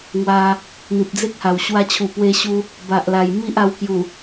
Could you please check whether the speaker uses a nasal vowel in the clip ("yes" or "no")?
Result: no